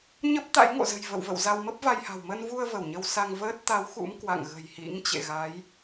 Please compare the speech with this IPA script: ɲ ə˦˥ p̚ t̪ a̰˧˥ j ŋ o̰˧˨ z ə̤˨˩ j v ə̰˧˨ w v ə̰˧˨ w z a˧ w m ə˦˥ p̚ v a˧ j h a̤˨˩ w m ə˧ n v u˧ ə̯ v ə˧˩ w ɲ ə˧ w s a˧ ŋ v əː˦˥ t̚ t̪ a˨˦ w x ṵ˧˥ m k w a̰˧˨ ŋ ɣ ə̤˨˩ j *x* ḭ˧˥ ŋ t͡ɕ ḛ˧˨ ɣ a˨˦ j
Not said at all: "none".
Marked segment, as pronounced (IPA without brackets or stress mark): h